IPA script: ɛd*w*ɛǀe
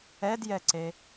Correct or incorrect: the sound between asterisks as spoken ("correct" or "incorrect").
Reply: incorrect